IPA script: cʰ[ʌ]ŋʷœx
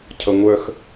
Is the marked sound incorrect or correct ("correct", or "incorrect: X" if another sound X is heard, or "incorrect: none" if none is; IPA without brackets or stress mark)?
correct